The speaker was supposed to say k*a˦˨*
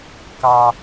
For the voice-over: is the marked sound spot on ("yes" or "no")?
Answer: no